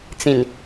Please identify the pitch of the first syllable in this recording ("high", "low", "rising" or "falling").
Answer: low